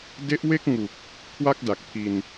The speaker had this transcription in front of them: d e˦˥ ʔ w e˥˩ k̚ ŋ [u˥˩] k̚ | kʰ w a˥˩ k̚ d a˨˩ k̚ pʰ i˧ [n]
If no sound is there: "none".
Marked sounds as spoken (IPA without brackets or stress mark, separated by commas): u˨˩, n